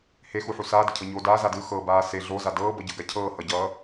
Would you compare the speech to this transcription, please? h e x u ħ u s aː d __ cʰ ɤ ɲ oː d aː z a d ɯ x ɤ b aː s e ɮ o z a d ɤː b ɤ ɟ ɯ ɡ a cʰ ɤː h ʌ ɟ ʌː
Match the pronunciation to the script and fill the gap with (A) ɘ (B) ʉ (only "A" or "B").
A